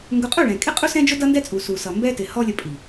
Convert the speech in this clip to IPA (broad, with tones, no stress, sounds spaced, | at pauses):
ŋ ɡ ʊ˧ qʼ u˦˨ ɭ ɛ̃˨ kʼ ɪ˦ qʼ u˦ s ɛ̃˦ d͡ʒ ʊ˦ d ʌ˦ n d ɛ˦ t͡sʼ u˨ s u˨ s ʌ˨ m b ɛ˦ t ɪ˨ h ɔ˦ lʲ ə˧ pʼ i˨